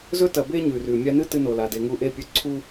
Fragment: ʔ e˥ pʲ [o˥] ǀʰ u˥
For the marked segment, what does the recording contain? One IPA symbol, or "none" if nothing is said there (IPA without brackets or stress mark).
ɵ˥